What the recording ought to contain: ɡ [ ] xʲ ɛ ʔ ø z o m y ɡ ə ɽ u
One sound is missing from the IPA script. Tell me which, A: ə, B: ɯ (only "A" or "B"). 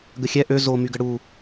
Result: A